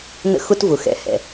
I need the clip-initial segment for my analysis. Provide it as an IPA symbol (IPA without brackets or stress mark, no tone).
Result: n